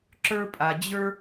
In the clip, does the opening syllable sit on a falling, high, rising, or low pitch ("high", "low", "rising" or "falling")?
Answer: high